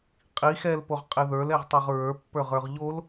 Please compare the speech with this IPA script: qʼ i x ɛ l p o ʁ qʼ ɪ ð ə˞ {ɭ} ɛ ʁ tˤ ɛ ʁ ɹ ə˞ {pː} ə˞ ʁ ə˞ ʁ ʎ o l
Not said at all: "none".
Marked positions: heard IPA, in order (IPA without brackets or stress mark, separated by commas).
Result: l, pː